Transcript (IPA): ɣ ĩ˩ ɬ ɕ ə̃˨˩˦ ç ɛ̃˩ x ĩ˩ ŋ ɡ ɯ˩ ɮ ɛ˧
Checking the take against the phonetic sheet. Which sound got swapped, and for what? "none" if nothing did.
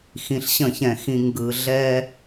ɣ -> x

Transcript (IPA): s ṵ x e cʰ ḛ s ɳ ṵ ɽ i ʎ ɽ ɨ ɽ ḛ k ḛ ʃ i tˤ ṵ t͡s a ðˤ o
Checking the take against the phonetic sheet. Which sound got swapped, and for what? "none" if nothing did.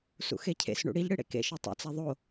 none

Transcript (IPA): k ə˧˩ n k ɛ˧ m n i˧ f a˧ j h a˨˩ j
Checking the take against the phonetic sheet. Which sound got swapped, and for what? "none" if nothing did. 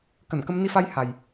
ɛ˧ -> ə˧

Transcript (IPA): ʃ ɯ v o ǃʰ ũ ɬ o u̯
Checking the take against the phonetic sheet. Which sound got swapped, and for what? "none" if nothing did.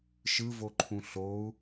none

